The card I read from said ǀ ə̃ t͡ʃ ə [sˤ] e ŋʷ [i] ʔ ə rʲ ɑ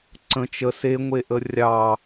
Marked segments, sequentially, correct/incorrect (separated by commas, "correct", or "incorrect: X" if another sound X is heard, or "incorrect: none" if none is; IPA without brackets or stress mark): incorrect: s, incorrect: e